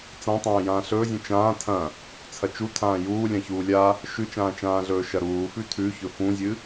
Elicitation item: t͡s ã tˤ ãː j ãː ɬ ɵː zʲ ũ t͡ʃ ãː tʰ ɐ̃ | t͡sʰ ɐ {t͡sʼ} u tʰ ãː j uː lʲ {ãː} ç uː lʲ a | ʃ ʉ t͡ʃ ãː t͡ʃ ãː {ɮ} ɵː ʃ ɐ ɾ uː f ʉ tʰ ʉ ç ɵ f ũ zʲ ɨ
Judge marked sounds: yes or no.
no, no, yes

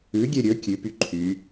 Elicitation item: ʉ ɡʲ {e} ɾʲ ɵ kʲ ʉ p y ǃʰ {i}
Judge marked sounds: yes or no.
yes, no

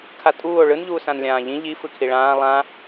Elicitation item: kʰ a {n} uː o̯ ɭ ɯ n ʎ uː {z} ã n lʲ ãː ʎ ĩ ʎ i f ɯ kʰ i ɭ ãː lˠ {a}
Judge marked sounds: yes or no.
no, no, no

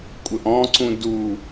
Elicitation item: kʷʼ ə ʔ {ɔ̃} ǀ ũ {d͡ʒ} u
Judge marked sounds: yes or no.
yes, no

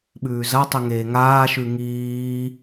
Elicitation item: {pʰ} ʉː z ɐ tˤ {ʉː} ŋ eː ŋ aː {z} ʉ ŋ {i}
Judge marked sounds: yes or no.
no, no, no, no

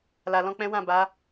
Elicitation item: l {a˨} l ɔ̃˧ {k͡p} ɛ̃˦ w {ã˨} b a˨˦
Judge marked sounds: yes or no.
yes, yes, no

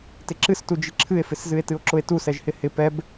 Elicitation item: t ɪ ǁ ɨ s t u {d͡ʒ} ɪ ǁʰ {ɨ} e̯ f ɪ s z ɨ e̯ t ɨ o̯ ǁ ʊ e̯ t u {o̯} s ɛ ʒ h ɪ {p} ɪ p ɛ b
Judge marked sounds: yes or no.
yes, yes, no, no

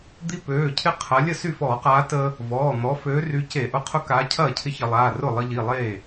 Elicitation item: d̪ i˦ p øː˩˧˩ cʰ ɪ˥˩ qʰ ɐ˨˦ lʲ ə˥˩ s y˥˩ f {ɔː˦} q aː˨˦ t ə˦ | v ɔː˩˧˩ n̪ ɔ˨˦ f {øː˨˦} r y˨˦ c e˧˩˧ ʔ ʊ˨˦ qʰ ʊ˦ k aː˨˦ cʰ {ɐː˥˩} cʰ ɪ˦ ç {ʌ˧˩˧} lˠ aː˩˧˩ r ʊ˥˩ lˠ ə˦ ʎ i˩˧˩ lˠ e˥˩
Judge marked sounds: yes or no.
no, yes, yes, no

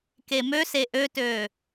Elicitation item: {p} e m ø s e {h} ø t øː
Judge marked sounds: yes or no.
no, no

